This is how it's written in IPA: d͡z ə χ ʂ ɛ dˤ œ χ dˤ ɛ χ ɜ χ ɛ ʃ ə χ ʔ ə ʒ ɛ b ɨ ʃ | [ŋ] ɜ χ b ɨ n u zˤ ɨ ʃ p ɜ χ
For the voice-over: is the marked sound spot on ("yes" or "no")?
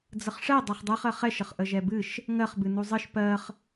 yes